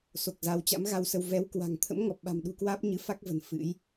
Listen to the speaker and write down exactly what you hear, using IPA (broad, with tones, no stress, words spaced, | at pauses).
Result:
so˨˩k̚ za˨˦wt͡ɕa̰˧˥m ɣa˧wsə˧w vɛ˨˦wkwa̤˨˩ŋ t̪ʰə̰˧˥mŋɔ˨˩p̚ ɓa̤˨˩mɗṳ˨˩kwaː˦˥p̚ ɲɨ˨˦fa˦˥k̚və̤˨˩n fɨ̰˧˥j